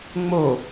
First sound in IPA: ŋ͡m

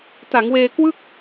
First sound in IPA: t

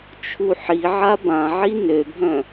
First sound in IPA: t͡ʃʰ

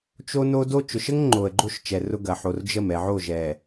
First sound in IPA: t͡ʃ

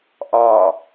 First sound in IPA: ʔ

